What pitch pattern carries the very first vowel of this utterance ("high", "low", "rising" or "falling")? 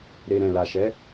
low